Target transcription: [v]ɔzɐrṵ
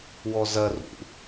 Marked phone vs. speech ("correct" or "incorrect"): incorrect